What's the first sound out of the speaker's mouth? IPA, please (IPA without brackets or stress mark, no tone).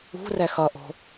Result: ṳ